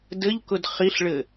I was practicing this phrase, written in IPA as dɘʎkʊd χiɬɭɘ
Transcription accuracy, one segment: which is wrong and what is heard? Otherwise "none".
none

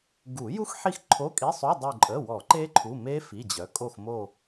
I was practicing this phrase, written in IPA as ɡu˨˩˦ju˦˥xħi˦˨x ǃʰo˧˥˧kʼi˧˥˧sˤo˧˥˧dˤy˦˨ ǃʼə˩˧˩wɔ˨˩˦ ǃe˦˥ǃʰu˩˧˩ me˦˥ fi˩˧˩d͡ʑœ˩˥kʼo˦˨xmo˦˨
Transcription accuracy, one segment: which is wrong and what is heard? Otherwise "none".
none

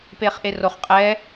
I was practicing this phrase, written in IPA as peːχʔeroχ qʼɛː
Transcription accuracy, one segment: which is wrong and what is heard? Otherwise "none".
none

